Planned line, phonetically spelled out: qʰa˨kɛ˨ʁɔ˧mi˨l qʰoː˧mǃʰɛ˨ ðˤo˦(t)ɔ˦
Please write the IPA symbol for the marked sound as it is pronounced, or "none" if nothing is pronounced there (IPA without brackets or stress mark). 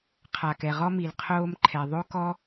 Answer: k